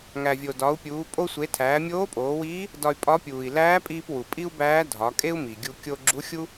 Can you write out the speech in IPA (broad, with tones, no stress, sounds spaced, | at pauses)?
ŋ æ˩ vʲ o˩ d ɒ˩˧ u̯ pʲ uː˩˧ pʼ o˧ sʷ e˩˧ tʰ æː˩˧ mʲ oː˧˥ pʼ oː˩˧ w iː˧˥ | d ɒ˧ y̯ pʼ ɒ˧˥ pʲ uː˩ i̯ l æː˧˥ pʼ iː˧ p w u˩ pʼ i˥ u̯ b æː˧˥ dʱ ɒ˩˧ kʼ e˥ u̯ m i˩ ɡʲ u˧ kʲ o˧ ɡ͡ǁ u˧˥ xʲ u˥